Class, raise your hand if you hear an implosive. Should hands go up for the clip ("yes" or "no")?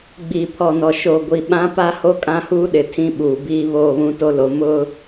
yes